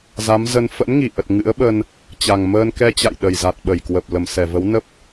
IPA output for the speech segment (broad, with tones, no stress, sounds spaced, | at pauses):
z a˨˦ m z ə˧ n f ə̰˧˥ n ŋ i˧˩ ʔ ə˨˩ t̚ ŋ ɨ̰˧˥ ə̯ ɓ ə˧ n | t͡ɕ a˨˩ ŋ m əː˧ n k ɛ˧ t͡ɕ a̰˧˨ j ɗ ə˨˩ j z a˨˩ t̚ ɓ ə˧˩ j k w ə˨˩ p̚ l ə˧˩ m s ɛ˧˩ v ə˨˦ w n ə˦˥ p̚